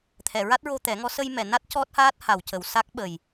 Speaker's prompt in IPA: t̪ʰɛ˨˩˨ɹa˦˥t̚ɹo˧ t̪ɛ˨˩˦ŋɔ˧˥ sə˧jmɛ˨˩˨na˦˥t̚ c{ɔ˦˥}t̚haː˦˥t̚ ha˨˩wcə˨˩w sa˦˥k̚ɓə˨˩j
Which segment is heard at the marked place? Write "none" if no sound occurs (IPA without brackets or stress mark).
ɔ˦˥